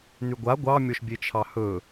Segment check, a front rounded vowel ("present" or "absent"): present